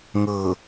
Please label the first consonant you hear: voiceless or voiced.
voiced